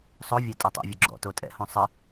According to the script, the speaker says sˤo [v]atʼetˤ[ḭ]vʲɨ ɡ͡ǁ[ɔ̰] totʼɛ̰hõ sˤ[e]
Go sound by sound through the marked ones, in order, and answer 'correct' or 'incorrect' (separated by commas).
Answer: incorrect, incorrect, correct, incorrect